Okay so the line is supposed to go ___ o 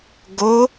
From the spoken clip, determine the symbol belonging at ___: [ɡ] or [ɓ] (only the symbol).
ɡ